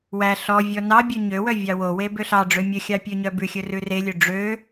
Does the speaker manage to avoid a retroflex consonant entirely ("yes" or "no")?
no